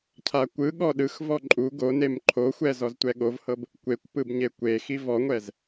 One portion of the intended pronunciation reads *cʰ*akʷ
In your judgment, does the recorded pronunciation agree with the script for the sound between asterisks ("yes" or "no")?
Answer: yes